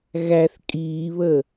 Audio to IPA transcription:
ɣ æ θ kʼ iː β ə

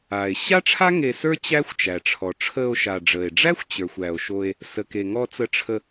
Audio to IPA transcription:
aː˩ e̯ ɕ a˥ ʈ͡ʂʰ a˥ ŋ e˧ s ə˞˥ t͡ɕ æ˥ xʷ t͡ʃ æ˩ ʈ͡ʂʰ ɔ˩ ʈ͡ʂʰ əː˧ o̯ ʃ a˩ ɖ͡ʐ əː˩ e̯ ɖ͡ʐ æ˥ xʷ t͡ɕ ə˞˩ xʷ æ˩ o̯ ʃ o˧ e̯ | s ə˩ k e˩ ŋ ɔ˧ t͡s ə˧ ʈ͡ʂʰ ə˧

